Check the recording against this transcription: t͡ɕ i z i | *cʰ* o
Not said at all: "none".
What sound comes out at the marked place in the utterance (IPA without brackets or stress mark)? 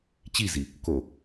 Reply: k